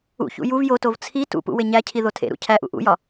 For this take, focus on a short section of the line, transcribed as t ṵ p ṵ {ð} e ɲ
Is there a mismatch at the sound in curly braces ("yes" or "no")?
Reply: yes